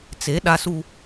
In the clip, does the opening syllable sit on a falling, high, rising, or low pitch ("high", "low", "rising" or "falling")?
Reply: rising